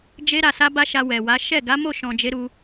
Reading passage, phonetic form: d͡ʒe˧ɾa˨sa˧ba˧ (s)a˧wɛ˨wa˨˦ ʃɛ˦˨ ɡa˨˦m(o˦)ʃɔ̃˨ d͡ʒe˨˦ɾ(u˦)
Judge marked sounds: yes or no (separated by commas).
no, no, no